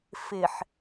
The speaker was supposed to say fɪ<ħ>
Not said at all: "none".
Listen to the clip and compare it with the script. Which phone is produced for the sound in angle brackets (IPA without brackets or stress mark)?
ħ